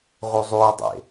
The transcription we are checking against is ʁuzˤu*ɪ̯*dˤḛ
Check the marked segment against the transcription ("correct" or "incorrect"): correct